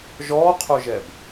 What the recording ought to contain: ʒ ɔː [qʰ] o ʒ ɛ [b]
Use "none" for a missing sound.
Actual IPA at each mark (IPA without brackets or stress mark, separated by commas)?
qʰ, b